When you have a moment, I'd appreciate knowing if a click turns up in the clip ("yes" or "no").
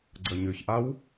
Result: yes